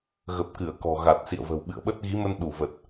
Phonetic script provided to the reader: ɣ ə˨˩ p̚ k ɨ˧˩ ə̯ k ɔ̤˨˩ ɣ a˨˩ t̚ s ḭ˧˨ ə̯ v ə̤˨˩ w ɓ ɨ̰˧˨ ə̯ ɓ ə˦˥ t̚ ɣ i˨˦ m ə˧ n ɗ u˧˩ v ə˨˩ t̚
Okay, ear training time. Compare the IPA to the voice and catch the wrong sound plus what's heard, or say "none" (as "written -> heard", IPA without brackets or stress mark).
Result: none